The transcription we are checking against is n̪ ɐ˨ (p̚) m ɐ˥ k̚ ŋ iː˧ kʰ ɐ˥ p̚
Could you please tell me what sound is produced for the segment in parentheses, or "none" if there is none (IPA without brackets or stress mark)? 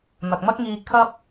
k̚